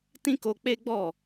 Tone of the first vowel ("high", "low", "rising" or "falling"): high